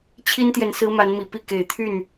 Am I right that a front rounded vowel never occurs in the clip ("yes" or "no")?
no